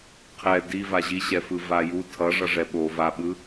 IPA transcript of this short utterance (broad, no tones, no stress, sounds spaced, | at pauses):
qʰ ɛ d i v a ʑ i ɕ ɛ f ɯ v a j u tʰ ʌ ʐ ʌ ʐ ɛ ɓ o v a ɓ ɯ